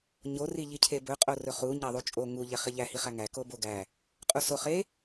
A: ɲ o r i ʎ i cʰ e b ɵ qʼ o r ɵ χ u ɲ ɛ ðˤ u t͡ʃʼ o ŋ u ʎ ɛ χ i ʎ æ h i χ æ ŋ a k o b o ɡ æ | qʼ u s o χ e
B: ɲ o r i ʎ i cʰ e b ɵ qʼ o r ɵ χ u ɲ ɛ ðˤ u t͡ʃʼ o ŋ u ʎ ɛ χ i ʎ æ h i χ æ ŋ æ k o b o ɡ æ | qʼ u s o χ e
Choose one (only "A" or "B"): B